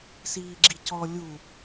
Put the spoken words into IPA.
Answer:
siːɡ͡ǁicɔ lʲu

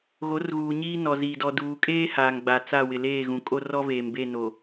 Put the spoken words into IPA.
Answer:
ɣo˨˦rɣuː˨ ɲiː˦nɔ˨ziː˨ dɔ˨duː˨kʼeː˦ haː˨ŋɡ͡ba˨t͡sa˦˨wɪ˨ leː˦˨ɣũ˨kʼo˦ rɔ˦veː˨mbe˦˨no˨

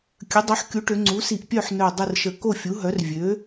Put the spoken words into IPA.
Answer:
kʲə˩˥dˤœ˩˥ħ kʲu˩˥ʈø˩˧ ŋ͡ǀu˩˥si˧˩ʔpʲœ˥˨ħ nœ˧˩dˤə˥˨rʃə˧˩ ko˥˨fʲu˩˥ɦœ˩˥r vʲø˩˥

